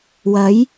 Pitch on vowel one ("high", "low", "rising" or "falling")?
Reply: rising